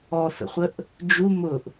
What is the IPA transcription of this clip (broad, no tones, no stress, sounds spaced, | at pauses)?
ɔ θ ə̰ χʷ ə ʔ | d͡ʒ u m ʊ ʔ